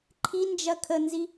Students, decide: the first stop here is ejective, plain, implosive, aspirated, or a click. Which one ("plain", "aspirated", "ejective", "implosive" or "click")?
click